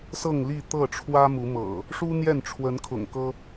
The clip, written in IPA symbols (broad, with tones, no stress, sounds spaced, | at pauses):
s ɤ˥˨ ŋ l i˥˨ t̪ ɤ˥˨ ʈ͡ʂʰ w ä˦ m u˨˦ m ɤ̰˨˩ | ʂ u˦ n̪ j ɛ˥˨ n ʈ͡ʂʰ w ə˨˦ n kʰ ʊ̰˨˩ ŋ k ɤ˦